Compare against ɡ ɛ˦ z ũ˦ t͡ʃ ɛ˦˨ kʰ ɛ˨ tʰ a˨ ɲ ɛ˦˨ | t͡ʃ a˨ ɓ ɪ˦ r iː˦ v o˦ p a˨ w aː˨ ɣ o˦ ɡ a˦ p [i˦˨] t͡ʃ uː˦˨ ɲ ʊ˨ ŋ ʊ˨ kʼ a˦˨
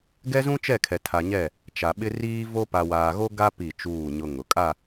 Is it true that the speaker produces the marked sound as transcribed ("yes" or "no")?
yes